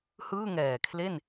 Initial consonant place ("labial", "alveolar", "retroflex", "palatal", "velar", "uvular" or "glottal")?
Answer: glottal